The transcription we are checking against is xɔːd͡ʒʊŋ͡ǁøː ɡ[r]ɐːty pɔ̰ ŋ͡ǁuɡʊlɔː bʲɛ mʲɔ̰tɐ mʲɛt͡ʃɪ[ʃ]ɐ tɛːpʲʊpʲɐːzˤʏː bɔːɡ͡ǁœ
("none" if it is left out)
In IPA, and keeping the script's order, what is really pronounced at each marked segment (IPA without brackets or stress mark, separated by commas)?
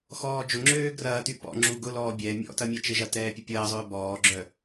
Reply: r, ʒ